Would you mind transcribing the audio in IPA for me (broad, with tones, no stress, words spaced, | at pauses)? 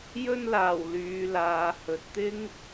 jɵ˧nlaː˨˩w lyː˨˧laː˨˧ hɵ˨t̚t̪ɪ˥ŋ